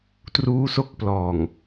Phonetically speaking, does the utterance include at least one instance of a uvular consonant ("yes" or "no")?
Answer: no